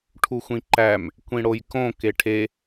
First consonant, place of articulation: retroflex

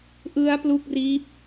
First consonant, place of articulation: glottal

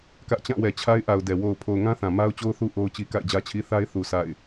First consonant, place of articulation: velar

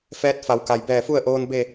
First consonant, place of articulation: labial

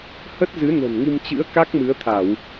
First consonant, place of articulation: glottal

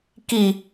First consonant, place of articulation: velar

